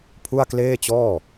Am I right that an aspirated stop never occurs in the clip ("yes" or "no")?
no